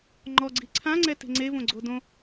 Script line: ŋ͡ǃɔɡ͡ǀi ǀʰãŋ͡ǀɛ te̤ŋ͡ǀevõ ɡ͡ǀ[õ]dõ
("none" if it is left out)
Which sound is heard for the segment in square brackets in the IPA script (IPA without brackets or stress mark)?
o